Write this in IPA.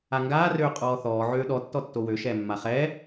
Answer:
aŋɡaːrøː qʼɔːθɔːʕøː ɗɔ tːɔtːowøʃɛː mːaχɛː

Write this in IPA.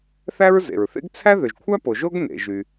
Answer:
θæ˥ɹzḛ˩ɹθḛ˥ɡ t͡sʰæ˥ðø˩ʒkʷʰæ˥po˩ ʒo˥ɡnḛ˩ʒy˩

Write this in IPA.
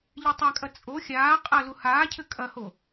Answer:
ʎetˤakʼɐ t͡sʼo xʲaː qʼɐlu haːcʰɘ kʼɐho

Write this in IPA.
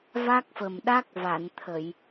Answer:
va˦˥k̚fə˨˩m ɗa˦˥k̚va˨˩˨nt̪ʰə˨˩˨j

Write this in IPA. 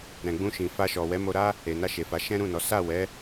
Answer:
ɾɛ̃˨ɡ͡bũ˧ʃĩ˨ fa˧ʃɔ˨ wɛ˨˦mo˧ɾa˦ | e˨na˧ʃe˨fa˨˦ ʃɛ̃˦ɾũ˦˨nɔ˨˦ sa˦˨wɛ˨˦

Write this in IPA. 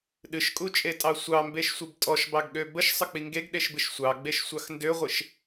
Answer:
ɗɨʃkʼut͡ʃʼetʼɑ sʷɑmbeʃsʷɨb tʼɔʃbɑɡɠø bəʃsˤək͡pi ŋɡeɡɗeʃbɨʃ sʷɑɡ͡beʃsʷɑx ndøʁʷɨʃ

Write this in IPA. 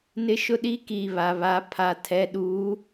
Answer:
nɪ˦ʃʊ˦ɗi˦ ki˨ βa˨βa˨˦ pʰa˨tʰɛ˨˦ ɗuː˨˦

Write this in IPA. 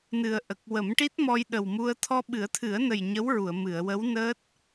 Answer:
nɨ˨˩ə̯ʔə˨˩k̚ wə˨˩˦mʈi˦˥t̚mɔ˧j ɗə˨˩wmu˧ə̯ t̪ʰɔ˧ɓɨ˨˩˦ə̯t̪ʰɨ˨˩˦ə̯nə˨˩j ɲə˧˥wɹu˨˩˨ə̯ mɨ˨˩˨ə̯wə˧˥wnəː˦˥t̚

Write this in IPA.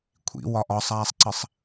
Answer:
kʷʰḭ wɒʔɒsˤaːsˤǀəsˤ

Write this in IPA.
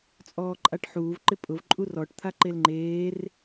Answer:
t͡sʼɔːǃʼaʈħuːv ǃɪpʼʊv ǃʼurɔʈ t̪ʰaǃelŋ͡ǃeːr

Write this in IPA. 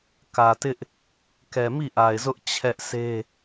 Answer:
kä˨tɪ˦ʔ | kɛ˨mi˦˨ʔa˨ɪ̯zʊ˦ʔ t͡ɕʰɛ˦ʔsʰe˦

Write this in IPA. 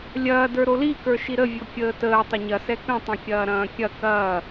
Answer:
lʲɐːdə˞ ɾolikə˞ ʃiɾəvʲo kʲəːtəː tˤəɲɐsɛ kə̃tˤə̃kʲɐː ɾɐ̃ːkʲɐ kɐː

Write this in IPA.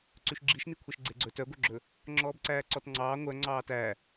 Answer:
ǀʉʃɡ͡ǁiʃnikʷʰɛʃ ɡ͡ǀeɡ͡ǀɵ tœɡʷœɡ͡ǁɵ | ŋ͡ǁɔːbǀæːǀɔtŋ͡ǀɑː ŋʷœ ŋ͡ǀɑːtæ

